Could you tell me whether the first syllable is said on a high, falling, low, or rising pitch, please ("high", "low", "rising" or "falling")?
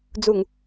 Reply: low